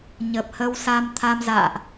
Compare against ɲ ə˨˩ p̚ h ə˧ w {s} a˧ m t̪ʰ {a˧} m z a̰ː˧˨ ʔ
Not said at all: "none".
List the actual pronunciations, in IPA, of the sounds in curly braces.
s, a˧

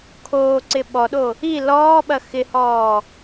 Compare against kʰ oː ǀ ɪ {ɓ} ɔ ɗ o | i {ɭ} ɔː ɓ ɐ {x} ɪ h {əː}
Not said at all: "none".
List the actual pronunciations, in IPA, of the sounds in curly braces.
ɓ, l, x, ɔː

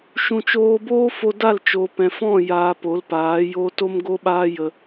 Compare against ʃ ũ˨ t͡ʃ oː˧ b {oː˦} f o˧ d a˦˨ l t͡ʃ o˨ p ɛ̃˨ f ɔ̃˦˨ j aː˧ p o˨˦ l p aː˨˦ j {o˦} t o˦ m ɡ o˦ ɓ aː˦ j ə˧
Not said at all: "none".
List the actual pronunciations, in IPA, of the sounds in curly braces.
oː˦, o˦

